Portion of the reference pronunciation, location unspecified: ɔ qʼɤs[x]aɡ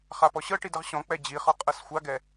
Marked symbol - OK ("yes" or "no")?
no